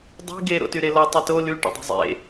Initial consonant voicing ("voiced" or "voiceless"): voiced